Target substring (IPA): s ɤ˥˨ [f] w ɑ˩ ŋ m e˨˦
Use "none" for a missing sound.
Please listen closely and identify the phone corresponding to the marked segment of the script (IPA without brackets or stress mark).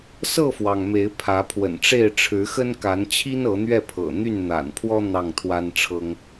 f